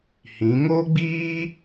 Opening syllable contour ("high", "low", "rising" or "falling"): rising